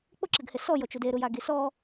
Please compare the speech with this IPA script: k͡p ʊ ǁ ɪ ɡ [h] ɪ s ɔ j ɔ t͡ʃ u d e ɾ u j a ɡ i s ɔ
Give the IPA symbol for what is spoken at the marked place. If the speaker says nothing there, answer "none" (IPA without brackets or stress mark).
h